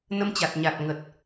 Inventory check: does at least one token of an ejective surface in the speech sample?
no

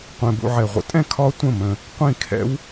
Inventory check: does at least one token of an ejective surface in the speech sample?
yes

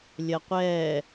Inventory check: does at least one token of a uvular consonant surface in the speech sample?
yes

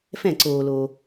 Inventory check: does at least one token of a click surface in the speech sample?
yes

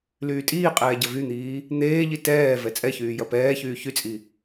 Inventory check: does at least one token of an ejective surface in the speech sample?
yes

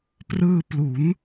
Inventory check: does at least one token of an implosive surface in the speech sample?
no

